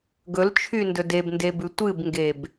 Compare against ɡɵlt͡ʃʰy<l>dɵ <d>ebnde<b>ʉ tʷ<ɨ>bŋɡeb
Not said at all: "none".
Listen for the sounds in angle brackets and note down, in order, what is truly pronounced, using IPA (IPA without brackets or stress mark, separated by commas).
n, d, b, ɨ